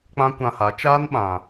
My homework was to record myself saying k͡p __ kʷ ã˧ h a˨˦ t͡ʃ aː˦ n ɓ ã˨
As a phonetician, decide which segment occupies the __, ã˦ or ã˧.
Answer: ã˦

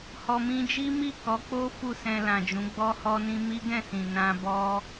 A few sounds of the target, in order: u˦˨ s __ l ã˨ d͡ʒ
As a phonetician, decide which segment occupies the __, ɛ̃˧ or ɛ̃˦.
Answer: ɛ̃˧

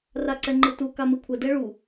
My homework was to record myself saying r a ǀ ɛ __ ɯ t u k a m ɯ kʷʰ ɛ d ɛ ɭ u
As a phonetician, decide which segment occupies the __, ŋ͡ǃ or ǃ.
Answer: ŋ͡ǃ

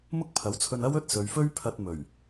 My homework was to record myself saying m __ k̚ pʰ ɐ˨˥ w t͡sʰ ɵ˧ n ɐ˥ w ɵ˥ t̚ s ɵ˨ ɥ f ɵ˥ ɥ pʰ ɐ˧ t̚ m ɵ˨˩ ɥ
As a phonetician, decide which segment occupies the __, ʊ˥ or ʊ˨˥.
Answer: ʊ˥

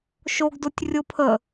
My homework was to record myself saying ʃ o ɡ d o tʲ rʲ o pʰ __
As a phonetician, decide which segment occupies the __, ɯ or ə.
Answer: ə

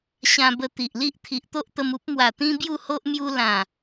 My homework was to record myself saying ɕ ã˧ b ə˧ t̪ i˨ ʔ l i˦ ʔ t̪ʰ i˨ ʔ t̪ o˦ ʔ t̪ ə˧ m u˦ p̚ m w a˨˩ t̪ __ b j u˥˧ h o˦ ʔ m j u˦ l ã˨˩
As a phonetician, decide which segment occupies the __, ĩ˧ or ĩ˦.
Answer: ĩ˦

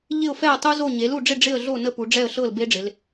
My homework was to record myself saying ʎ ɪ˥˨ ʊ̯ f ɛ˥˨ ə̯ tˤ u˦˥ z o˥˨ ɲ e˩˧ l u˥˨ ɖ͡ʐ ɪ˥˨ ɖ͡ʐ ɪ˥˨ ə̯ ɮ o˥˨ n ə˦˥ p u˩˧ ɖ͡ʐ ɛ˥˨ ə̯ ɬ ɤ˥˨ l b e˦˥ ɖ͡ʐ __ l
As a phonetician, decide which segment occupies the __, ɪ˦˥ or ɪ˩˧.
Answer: ɪ˩˧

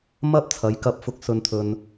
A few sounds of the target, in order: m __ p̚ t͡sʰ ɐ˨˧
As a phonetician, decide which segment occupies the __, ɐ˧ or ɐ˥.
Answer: ɐ˥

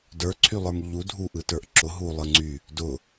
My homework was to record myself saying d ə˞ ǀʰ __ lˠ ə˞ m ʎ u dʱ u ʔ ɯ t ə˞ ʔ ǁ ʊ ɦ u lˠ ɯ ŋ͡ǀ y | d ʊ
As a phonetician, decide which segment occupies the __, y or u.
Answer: y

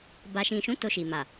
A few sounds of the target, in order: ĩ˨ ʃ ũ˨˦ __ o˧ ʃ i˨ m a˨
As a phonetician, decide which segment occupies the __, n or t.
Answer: t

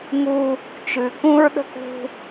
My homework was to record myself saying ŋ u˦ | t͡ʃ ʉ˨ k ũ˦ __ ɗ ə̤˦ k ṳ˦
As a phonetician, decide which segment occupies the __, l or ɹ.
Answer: ɹ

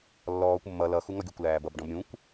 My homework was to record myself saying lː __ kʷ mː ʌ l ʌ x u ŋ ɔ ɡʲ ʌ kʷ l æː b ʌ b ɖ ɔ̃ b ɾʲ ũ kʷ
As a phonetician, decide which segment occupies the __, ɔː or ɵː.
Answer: ɔː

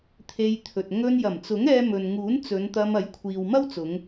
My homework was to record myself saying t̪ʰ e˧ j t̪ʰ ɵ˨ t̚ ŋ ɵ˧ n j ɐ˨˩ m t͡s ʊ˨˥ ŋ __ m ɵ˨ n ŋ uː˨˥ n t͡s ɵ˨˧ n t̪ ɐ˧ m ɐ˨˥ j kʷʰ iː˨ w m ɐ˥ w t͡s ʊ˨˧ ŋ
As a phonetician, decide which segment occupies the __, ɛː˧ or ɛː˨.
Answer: ɛː˧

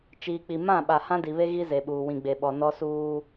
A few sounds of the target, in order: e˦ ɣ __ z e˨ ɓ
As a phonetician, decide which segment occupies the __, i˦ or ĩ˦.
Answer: i˦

